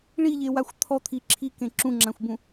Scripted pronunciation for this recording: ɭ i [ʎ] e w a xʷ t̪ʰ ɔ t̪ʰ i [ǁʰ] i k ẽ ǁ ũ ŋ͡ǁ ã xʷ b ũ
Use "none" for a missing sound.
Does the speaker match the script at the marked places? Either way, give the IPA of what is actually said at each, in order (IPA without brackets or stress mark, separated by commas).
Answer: ʎ, ǁʰ